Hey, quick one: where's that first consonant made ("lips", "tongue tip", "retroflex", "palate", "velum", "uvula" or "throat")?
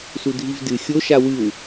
tongue tip